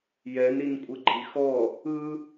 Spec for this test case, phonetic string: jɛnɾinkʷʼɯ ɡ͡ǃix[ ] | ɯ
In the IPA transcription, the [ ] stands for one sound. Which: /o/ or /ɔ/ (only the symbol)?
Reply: ɔ